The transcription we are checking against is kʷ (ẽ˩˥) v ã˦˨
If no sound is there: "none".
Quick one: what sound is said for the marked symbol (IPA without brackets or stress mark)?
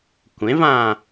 ẽ˩˥